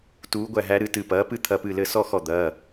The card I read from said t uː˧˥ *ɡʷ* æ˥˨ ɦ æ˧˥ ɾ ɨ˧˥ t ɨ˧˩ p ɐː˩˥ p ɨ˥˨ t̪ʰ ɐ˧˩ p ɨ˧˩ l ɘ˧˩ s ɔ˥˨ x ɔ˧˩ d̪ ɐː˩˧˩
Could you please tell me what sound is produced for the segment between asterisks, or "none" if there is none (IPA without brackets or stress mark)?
ɡʷ